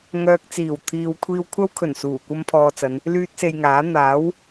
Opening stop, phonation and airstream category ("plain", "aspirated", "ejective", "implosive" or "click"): plain